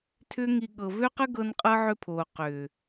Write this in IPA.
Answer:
tʰ ʏː˦ ŋ i˧ ɠ ɤ˨ v ø˦ q ə˦ ɡ ɤ˧ n qʼ ɤ˦ ʕ ʏ˦ pʰ oː˨ q ʏː˨

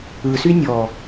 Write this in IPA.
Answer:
ɯ s y nʲ ɔ

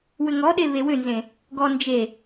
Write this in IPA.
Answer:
w ʏ ŋ ɔ ɗ e β e w ʏ n z ẽ | ɡ ɔ n d͡ʒ e

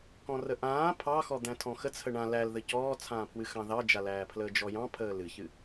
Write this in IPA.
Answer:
k ɔ̃ r ə ʔ ãː pʰ ɑ x ɔ d̪ æ̃ tʰ ɔ̃ x ə t͡sʰ ə ɳ ã l æ l ð ə c ɔː t͡sʰ ãː pʰ w ɨ x ɑ̃ ð ɑ d͡ʒ a l æː pʰ l əː d͡ʒ ɔ j ɑ̃ pʰ əː l ɨ ç ɨ

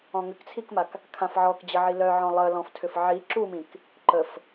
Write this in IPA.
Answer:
ɔ̃ ŋ ʏ k t͡sʰ i k m a k | kʰ ã f ʕ ɔ k d͡ʑ ə ʕ i l œ ʕ ɔ̃ lˠ ə l ɔ̃ f tʰ ʏ f ʕ i ǁ u m ĩ k | ǃ ə f

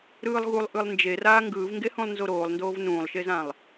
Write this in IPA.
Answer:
ɾ ɯː lˠ ɣ u lˠ ʔ ɯ lˠ n d͡ʒ e r aː ŋ ɡ ɯː v ŋ ɡ e h ũ lˠ n z o ɾ oː lˠ n d oː v n ũː lˠ ʃ e z ã lˠ

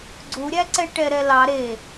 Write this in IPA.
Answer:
ɡ͡ǀ u ɾʲ æ ǀ ɛ ʈ ɛ ɾ ɛ l ɑ ɾ e

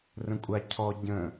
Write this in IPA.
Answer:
r ə̃ kʷʼ a cʰ ɔ ɟ ə̃

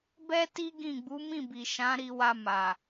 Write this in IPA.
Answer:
b ɛ˦ t i˦ ɡ ĩ˦˨ ɡ͡b u˨˦ m ĩ˦˨ b i˨ ʃ ã˨˦ ɾ i˧ w a˧ m a˨

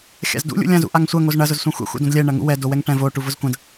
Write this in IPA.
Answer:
xʲ a̰ z d ṵ lʲ ṵ lʲ ã z ṵ ʔ a ŋ sʷ ɐ ŋ o z ɳ ɐ z ʊ z sʷ ã xʷ ɛ̰ xʷ ɛ̰ d õ d lʲ ɛ ɳ ɐ ŋ ṵ w ɛ d o w ɛ ŋ ʈ ɛ̃ v o ʈ u v ʊ z kʷ ɐ̃ d

